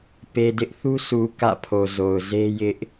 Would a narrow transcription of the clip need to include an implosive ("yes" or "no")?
no